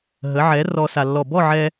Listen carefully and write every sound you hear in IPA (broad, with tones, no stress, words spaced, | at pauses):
ɦə˩˥ʕɛ˩˥ rɔ˧ sa˧lːɔ˥˨ bɔ˥˨ʕɛ˧